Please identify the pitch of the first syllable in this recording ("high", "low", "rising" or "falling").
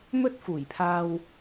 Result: high